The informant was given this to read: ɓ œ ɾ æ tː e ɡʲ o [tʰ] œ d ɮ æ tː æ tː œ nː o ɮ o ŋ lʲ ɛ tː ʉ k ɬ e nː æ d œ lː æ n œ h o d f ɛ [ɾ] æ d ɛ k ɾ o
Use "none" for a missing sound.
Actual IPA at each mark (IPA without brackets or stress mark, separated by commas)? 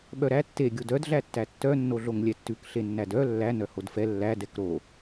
d, lː